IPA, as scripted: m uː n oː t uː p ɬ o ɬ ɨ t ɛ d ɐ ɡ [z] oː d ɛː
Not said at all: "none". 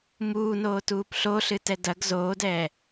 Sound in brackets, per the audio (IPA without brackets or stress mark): z